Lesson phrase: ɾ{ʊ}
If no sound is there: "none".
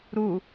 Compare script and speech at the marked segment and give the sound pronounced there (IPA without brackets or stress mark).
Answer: u